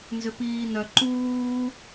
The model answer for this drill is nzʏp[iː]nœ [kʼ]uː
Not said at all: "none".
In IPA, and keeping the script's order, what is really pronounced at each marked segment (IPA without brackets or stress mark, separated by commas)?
iː, ǃ